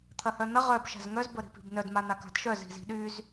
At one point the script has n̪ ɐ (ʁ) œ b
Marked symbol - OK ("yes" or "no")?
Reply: yes